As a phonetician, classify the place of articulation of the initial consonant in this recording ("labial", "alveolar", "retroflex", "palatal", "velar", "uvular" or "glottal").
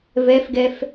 labial